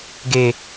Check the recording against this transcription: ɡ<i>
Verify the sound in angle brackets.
incorrect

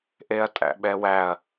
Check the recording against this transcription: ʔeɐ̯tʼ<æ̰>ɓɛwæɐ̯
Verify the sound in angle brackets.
correct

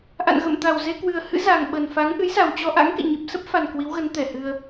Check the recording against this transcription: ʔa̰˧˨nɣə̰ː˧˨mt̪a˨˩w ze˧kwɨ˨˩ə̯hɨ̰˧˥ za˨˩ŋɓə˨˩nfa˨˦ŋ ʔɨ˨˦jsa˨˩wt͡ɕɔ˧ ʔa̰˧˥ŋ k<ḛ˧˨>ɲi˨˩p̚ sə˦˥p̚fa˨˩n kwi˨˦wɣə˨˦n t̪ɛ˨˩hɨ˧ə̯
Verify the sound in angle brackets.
correct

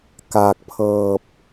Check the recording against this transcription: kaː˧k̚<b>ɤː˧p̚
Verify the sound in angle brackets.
incorrect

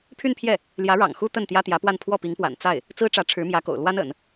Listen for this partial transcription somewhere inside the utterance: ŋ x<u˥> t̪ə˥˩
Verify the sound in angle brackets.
correct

